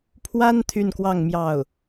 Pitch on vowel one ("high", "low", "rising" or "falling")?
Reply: high